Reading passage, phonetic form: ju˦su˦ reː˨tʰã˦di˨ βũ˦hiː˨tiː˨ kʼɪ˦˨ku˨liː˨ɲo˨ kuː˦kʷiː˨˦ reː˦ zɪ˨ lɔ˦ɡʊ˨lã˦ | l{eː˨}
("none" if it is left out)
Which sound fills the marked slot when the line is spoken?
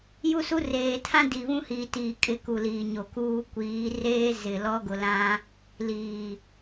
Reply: iː˨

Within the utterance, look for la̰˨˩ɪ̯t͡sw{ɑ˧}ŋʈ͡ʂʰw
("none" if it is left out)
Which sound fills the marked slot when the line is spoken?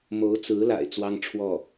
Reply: ɑ˥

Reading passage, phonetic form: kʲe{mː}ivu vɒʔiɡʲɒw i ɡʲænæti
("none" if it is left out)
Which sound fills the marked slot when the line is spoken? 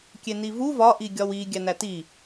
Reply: n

